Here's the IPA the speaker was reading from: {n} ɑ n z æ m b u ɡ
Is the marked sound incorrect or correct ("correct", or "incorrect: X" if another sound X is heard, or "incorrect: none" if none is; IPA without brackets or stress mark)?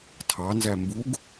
incorrect: tʰ